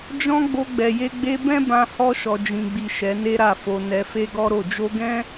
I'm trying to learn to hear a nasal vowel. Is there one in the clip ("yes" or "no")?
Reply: yes